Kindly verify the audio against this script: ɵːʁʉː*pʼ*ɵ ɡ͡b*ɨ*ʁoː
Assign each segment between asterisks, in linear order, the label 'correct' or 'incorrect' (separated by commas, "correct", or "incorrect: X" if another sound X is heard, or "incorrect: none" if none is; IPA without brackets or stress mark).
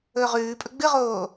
correct, correct